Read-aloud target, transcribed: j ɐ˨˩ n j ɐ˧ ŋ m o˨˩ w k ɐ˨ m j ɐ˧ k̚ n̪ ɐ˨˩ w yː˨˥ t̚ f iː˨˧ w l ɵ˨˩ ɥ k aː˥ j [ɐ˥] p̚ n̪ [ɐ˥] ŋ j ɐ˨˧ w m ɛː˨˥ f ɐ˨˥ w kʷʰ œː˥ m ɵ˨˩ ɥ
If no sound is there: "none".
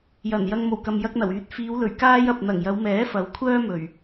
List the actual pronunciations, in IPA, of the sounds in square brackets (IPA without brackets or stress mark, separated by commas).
ɐ˨, ɐ˨˩